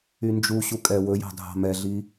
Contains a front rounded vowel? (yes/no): yes